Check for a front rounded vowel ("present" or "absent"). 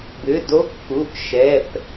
present